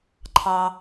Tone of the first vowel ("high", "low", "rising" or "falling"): high